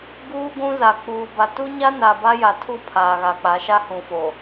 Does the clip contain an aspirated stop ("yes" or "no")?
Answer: yes